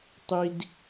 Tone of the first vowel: high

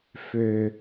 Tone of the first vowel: low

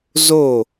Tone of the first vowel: falling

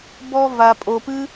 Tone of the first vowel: high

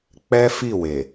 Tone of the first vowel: high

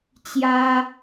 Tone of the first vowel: high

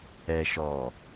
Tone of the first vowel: low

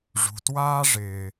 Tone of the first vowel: low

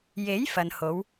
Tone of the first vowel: rising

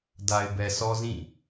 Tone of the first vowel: low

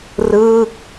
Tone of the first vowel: falling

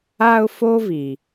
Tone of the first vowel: high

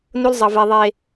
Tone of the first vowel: high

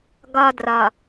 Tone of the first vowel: high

